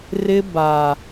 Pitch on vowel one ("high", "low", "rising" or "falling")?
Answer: high